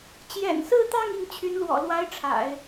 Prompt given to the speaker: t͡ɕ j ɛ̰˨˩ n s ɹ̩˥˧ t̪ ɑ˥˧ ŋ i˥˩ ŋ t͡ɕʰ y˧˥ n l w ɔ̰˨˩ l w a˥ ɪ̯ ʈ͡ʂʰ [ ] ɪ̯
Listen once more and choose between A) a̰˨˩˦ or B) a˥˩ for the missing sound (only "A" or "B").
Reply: A